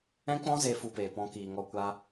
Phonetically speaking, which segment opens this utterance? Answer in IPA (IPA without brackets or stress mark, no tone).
ɛ̃